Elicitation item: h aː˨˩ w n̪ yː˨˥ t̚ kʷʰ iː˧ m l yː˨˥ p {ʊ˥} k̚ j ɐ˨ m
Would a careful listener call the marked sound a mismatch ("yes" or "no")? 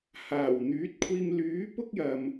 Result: no